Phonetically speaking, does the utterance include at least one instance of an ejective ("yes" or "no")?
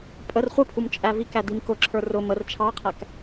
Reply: yes